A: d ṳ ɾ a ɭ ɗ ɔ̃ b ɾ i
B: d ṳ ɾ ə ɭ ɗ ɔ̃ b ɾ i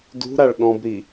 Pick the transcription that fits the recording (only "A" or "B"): A